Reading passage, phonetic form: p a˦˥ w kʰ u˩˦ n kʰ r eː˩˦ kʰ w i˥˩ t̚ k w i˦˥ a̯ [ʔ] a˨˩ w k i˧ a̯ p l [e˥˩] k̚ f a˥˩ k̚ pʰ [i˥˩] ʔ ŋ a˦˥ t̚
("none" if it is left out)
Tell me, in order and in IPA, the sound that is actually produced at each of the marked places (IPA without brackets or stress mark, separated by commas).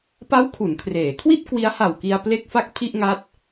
h, e˥˩, i˥˩